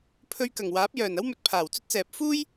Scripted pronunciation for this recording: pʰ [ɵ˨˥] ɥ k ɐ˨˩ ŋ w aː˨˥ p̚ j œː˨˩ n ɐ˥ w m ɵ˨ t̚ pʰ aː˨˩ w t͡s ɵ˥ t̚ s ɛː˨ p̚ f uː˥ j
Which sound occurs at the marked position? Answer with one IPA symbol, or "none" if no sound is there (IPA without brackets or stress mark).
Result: ɵ˧